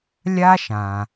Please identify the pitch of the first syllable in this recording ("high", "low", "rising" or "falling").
high